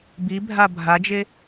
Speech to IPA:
b i bʱ a bʱ a d͡ʒ e

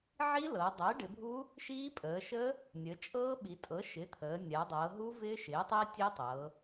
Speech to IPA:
ʕ i˦˥ l ɤ˩˧ dˤ əː˩˥ ɖ ɪ˩˧ bʱ u˦˥ | ʃ iː˦˥ pʼ əː˩˧ ʃ ə˦˥ | nʲ ə˩˧ t͡ʃʼ ɤː˦˥ ɓ i˩˧ tʼ ɤ˩˥ ʃ ɪ˩˥ t̪ʰ əː˩˧ nʲ a˩˧ dˤ ɤː˩˧ ɦ u˦˥ v ɪː˦˥ ʃ ɪː˩˥ tˤ i˦˥ tʲ e˦˥ tˤ ɤ˩˧

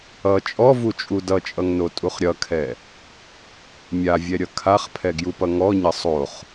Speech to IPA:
ʌ t͡ʃʼ ɔ v u t͡ʃʼ u d ʌ t͡ʃʼ ʌ ŋ n o tʼ u χ ɾʲ ʌ kʰ ɛ | mʲ a vʲ ɛ ɾʲ ʌ kʰ a χ pʰ ɛ ɡ j u p ʌ ŋ ɔ ɲ ʌ sˤ o χ

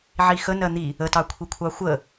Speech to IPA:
ʕ i x ə n ɜ n̪ i | ə t ɑ kʷʰ i kʷʰ ɑ xʷ ə

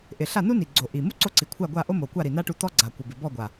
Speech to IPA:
ʔ ɪ˨˩ ɬ a˥˩ n u˥ n i˨˩ ɡ͡ǀ o˨˩ ʔ i˨˩ m u˥ ǀ o˥˩ ǀ i˨˩ kʷʰ a˥˩ ɡʷ a˥˩ ʔ o˥ m o˨˩ kʷ a˥˩ ɾ i˨˩ n a˥ ʈ u˥˩ t̪ ɔ˥ ɡ͡ǀ a˨˩ kʷ ɪ˨˩ b ɪ˨˩ b ɔ˥˩ ɡʷ a˨˩

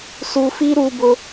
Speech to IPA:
s u˧ f i˦ ɾ u˧ b ʊ˧

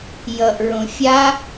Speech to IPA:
j ʌ ʔ ɹ õ fʲ a

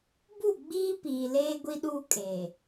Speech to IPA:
b u˦˨ ɡ͡b iː˦ p iː˨ l eː˦ ɡʷ i˦ ɗ uː˦ kʼ eː˨

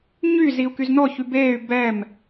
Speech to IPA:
ɲ y z i u̯ k y z n ɔ ç y b eː y̯ b ɛ m

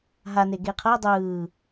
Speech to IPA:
ɦ a n e ɡ e qʰ ɤ dˤ ɯː

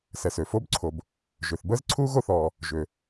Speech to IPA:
s ɛ˩ s ø˩ f o˥ b ǀʰ o˩ b | ʒ ø˩ θ b əː˥ z ǀʰ uː˥ ɣ o˥ θ ɔː˩ | ʒ ø˩

